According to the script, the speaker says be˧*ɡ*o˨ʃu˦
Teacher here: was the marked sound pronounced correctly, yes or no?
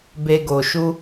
yes